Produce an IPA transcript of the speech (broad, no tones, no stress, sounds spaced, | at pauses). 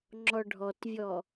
ŋ͡ǁ ɔ ɖʱ ɔ t vʲ ɔ